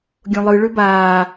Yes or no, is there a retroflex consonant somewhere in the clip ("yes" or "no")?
yes